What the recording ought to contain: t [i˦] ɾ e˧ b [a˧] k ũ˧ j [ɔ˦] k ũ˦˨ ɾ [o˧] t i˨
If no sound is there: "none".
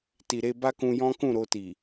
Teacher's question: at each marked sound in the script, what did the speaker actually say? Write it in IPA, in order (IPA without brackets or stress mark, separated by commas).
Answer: i˨, a˦, ɔ̃˦, o˧